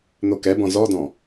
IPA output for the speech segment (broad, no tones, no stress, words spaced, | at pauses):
n̪okɛbɔ̃ zɔdɔ̃